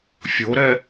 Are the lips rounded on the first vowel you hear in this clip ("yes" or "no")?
yes